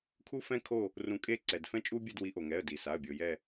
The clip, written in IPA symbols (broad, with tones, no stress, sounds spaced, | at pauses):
kʰ u˦ f ɛ̃˦ kʰ o˦˨ | r ũ˨˩˦ kʼ e˦˨ ǀ ɛ˩ d f ɛ̃˦ t͡ʃʼ u˦ bʲ ɛ˦˨ d w i˨˦ ʔ o˩ ŋ ɛ˩˧˩ ə̯ d i˩ s a˩˧˩ ə̯ bʲ o˩ j ɛ˦˨